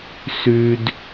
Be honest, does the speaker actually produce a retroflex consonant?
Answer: no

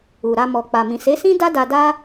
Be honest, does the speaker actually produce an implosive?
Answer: no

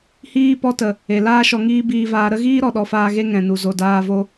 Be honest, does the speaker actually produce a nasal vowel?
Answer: yes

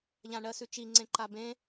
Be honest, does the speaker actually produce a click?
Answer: yes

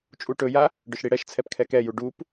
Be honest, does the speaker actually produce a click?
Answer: no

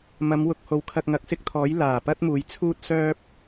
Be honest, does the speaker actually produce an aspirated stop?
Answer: yes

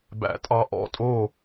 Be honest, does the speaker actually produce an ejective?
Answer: yes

